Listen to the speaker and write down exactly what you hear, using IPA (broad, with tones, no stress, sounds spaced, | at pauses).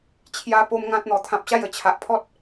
t͡ɕʰ j a˦ p o˦ m ŋ ã˦ t̚ n̪ ɔ˨˩ t̪ʰ ã˨ p̚ ɕ a˥˧ j ə˨˩ t͡ɕʰ a˨ ʔ pʰ ɔ˦ t̚